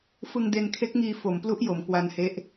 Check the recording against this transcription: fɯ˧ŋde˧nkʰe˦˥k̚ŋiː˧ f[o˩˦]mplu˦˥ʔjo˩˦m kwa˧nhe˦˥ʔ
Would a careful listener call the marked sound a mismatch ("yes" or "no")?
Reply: no